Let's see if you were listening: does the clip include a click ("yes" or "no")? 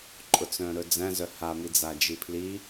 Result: yes